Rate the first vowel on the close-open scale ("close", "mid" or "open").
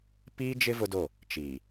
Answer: close